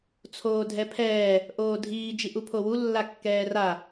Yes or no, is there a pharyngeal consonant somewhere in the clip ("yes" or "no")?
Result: no